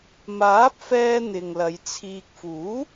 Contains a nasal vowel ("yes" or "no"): no